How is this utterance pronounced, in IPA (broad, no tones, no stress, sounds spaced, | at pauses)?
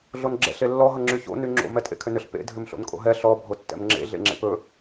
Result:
ɮ o n ɡ͡ǁ ɛ̰ ɬ e lː ɔ ɦ ʌ ŋ͡ǁ y ç o̰ n y ŋ͡ǁ o̰ m ɛ tʼ ḛ kʰ ʏ n ʏ ɬ p ḛ dʱ ʏ m ɬ o̰ n kʼ o̰ ɦ ɛ ɬ ɔ bʱ o tː ɛ̰ m ŋ͡ǁ ḛ ɮ ḛ ŋ͡ǁ ḛ p ɵ